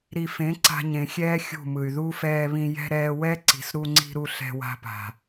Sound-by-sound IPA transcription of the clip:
ɾi˨fẽ˨˦ ǀa̤˧ɲẽ˨xʲɛː˦ xʲṳ˦˨mɯ˨y̯ ðu˦ fɛː˧βĩ˧ jɛ̤˧ ɾɛː˧wɛ˦ ǀi̤˨s ɾu˧ŋ͡ǀi̤˧ɾu˧ ɬɛ̤˧wa̤˧pa̤˨

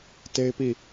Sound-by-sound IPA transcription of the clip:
te˦ɪ̯ pi˦˨

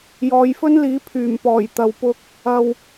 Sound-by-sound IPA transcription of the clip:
jɔː˨˧jfɵ˥nliː˨˥ pʰyː˨˩mpɔː˨˩j t̪ɐ˨wpʊ˧k̚ | ɐ˨w

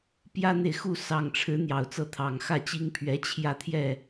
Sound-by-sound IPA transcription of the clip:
pjä˥n̪e˨ɪ̯ xu˥˩sɑ˨˩ŋʈ͡ʂʰɻ̩˧˥ n̪jɑ˨˩ʊ̯t͡sɤ˥˩ t̪ʰɑ˨˩ŋ xä˥˩t͡ɕi˥ŋpʰɥɛ˧˥ t͡ɕʰjä˥˧t̪ʰjɛ˥˩

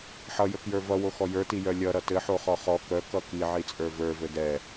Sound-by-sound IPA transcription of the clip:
ħʌjəkjə˞ vʌwoxɔ jə˞tijœ lʲʌɾʌ tɘħoχɔ χɔ kœkʌ kiʕit͡sʼə˞ və˞vɘ dɛ

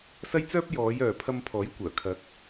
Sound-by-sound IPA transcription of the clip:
sɐ˥jt͡sœː˥p̚ jɔː˨˧jœː˨ pʰɐ˧mpʰɔː˨˥jkʷœː˨˩kʰɐ˨˥k̚

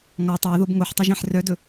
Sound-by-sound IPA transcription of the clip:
ŋɔ tˤoə̯ðob ŋoħtˤɛʒæ̃ħ rœdɵ

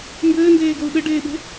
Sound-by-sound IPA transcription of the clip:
mbɘːndeːɡou̯ ɗɘɖeːɓe̤

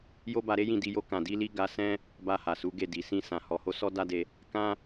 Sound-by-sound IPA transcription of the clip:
jo˦ba˧ɾe˦jĩ˦˨ di˧jo˧ kã˨di˧li˧ ɡa˧sɛ̃˦ | ba˧ha˨su˨˦ɡe˦˨ di˨sĩ˧sã˨ hɔ˨ho˨˦ sɔ˦da˦de˧ | kã˦

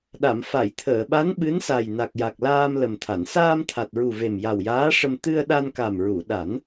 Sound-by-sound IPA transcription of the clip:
ɗa˨˩˨m fa˨˩˨jt̪ʰəː˨˩˨ɓa˧˥n ɓɨ˧˥nsa˨˩j na˨˩k̚ja˨˩k̚laː˧m lə˨˩mt̪ʰa˨˩˨n saː˧mt̪ʰa˨˩t̚ɹu˨˩ ve˨˩mja˨˩wjaː˧˥ʂə˧m t̪ɨ˧ə̯ ɗa˧nka˨˩mɹu˨˩˨ɗa˨˩˦n

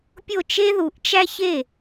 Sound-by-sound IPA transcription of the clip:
pʲo˥˩t͡ʃe˥ðu˩˥ʔt͡ʃæ˥ çe˥˩

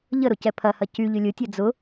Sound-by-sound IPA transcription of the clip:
ʎəɾʊ cɛpʰɐhɐ cy ʎʏlʲʊtʲɐ d͡zʊ

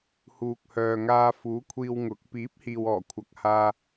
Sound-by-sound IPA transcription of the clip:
huː˨k̚hœː˨ ŋaː˧fuː˨˥kʷʰiː˧w ŋʊ˨˥k̚ piː˨˥p̚hiː˨wɔː˨˩ kʷʰɐ˨k̚haː˧

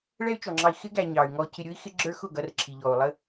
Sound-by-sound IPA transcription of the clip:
ɭɛ˦y̯t͡ʃɔ˨ŋ͡ǁɑ˧i̯ xɪ˦ ɡæ˧ ɲɑ˨y̯ ŋɔ˧cʰɪ˧ ɾʲʊ˦i̯xɪ˦ɡ͡ǁə˞˦ xʊ˦˨ɡʌ˧r ǁʰi˨ʎɔ˨u̯lˠə˦

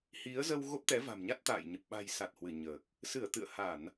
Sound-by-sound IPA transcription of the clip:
hi˨˦ə̯zə˧w ɣo˦˥p̚t̪ɛ˨˦va̤˨˩mɲa˦˥t̚ t̪a̰ː˧˨jɲə˨˩p̚ ɓa̤˨˩jsa˨˩t̚ hwɨ˧˩ɲəː˨˩k̚ | sɨ˧˩ə̯t̪ɨ̰˧˨ə̯ha˧˩˨n

